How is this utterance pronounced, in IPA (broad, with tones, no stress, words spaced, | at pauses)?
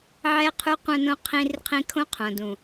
ʕɛ˦qʰu˦ qʷœ̃˦nõ˦ qʰĩ˦rqʰĩ˦ kʰõ˦qʰõ˨dũ˨